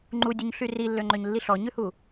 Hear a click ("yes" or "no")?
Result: yes